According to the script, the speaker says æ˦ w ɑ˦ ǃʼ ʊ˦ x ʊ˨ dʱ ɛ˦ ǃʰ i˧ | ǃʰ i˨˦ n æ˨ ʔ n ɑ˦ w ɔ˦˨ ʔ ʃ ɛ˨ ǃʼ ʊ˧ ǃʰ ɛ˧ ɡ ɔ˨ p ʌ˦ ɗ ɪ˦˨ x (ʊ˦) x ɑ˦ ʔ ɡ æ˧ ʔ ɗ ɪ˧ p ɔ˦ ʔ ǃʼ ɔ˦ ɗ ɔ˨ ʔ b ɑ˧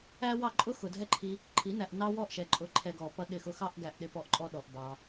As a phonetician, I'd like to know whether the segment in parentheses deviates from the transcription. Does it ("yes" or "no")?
no